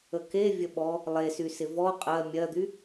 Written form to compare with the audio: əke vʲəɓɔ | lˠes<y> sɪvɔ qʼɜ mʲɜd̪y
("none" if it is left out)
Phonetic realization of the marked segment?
y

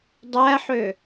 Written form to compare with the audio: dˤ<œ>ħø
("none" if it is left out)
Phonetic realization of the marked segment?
æ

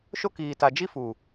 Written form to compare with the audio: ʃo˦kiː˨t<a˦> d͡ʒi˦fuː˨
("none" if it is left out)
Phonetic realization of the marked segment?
a˨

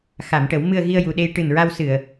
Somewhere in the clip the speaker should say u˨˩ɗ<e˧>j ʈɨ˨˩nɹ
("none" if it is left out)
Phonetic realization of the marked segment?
e˧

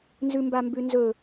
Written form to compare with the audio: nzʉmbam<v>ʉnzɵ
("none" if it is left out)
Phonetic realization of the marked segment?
b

